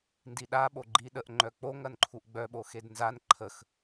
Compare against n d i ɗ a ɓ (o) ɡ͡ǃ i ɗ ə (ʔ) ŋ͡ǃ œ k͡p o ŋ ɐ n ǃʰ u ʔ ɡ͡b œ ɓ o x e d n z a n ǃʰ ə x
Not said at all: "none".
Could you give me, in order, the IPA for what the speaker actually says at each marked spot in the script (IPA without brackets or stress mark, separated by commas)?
o, ʔ